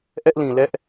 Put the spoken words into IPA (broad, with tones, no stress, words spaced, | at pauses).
ʔɛ˦ʔlĩ˨lɛ˦ʔ